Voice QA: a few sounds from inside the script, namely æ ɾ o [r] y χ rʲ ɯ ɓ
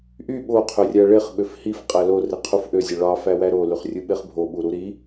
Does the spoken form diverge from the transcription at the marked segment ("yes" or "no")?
yes